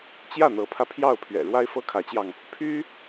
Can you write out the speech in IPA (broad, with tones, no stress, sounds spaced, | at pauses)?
t͡ɕ j ä˥˩ n̪ ɤ˧˥ pʰ ä˧ pʰ j ɑ˥˩ ʊ̯ pʰ ɥ ɛ̰˨˩ ɻ w a˥ ɪ̯ f ɤ˥ kʰ ä˧˥ t͡ɕ j ɑ˧ ŋ | pʰ y˥